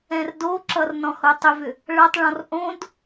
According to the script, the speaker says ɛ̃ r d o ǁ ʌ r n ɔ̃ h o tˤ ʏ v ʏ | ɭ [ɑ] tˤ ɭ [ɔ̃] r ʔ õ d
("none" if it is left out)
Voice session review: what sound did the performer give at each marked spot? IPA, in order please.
ʌ, ɔ̃

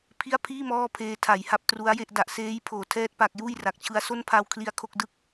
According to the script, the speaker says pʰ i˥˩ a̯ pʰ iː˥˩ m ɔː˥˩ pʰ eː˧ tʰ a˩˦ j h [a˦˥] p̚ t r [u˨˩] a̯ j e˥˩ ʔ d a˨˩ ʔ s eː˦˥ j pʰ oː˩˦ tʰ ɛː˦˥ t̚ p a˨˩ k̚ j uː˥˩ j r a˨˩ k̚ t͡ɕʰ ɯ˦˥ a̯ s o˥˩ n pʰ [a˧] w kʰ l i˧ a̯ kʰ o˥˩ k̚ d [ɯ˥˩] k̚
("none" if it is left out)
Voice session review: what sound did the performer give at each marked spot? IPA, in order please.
a˦˥, u˦˥, a˧, ɯ˥˩

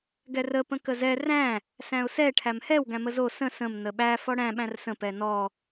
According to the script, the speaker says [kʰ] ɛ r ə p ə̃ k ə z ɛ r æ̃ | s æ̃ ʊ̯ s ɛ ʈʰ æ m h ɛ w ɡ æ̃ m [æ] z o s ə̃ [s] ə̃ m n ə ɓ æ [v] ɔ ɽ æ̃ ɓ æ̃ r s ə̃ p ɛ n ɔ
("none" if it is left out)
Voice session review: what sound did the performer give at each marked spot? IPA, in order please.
ɡ, ə, s, f

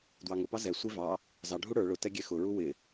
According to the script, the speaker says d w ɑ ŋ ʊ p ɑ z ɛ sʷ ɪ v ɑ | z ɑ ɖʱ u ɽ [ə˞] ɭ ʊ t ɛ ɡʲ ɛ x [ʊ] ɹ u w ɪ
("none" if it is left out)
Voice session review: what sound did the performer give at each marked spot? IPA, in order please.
ə˞, ʊ

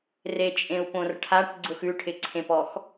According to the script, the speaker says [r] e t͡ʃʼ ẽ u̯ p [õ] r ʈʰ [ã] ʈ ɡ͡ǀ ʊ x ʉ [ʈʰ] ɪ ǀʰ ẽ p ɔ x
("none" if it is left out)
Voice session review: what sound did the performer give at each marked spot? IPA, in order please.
r, õ, a, ʈʰ

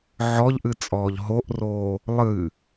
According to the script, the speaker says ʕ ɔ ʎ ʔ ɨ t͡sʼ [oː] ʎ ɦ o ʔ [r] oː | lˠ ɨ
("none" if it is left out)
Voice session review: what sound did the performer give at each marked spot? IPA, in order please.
ɔː, r

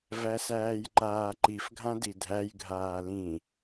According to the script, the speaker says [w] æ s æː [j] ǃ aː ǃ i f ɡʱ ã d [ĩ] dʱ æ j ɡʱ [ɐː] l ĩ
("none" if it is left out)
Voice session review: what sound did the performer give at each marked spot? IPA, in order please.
v, j, i, aː

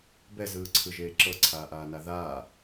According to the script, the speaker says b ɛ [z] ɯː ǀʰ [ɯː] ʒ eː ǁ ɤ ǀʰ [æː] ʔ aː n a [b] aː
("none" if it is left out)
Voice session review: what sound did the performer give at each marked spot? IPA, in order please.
z, ɯ, aː, ð

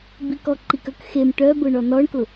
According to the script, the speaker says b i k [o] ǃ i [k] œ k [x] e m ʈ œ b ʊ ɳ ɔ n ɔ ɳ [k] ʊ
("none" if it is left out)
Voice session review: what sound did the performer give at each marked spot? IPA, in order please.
ɔ, k, x, k

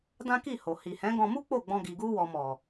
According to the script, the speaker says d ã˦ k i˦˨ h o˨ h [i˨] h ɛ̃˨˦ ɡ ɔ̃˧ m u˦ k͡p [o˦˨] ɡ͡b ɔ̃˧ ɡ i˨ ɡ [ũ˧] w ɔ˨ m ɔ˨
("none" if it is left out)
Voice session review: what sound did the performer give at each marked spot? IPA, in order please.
i˨, o˦˨, u˧

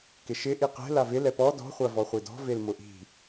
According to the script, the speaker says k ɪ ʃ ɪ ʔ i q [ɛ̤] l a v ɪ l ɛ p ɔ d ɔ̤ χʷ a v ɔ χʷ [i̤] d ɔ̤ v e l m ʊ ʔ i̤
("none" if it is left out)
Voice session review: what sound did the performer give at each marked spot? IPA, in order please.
ɛ̤, i

